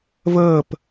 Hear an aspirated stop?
no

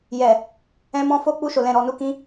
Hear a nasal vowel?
yes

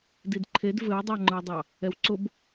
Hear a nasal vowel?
no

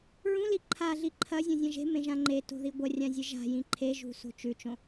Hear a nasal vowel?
yes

